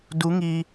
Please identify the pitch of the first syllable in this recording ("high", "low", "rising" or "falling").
rising